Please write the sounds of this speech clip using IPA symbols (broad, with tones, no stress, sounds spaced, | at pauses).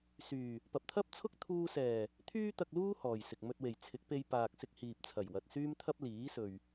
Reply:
s yː˨˩ | p ɐ˨ p̚ t̪ʰ ɐ˥ p̚ t͡sʰ ʊ˥ k̚ t̪ʰ uː˧ s ɛː˨˩ | t̪ʰ yː˧ t̪ ɐ˨ k̚ l uː˧ h ɔː˨ j s ɪ˨ k̚ m ɵ˧ t̚ w e˨˩ j t͡sʰ ɪ˨˥ k̚ p e˧ j p aː˨ k̚ s ɪ˧ k̚ h iː˨ p̚ t͡sʰ ɐ˨˩ j w ɐ˨ t̚ s yː˥ m t̪ʰ ɐ˥ p̚ l iː˨˥ s ɵ˨ ɥ